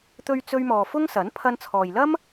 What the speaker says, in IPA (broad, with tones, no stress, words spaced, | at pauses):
t̪ɵ˧ɥ t͡sɵ˥ɥmɔː˧ fʊ˥ŋsɐ˨˥n pʰɐ˧nt͡sʰɔː˨jlɐ˥m